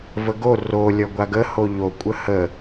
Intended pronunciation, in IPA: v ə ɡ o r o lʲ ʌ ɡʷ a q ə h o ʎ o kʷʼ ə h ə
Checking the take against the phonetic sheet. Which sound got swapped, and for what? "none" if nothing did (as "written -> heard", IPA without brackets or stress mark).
q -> ɡ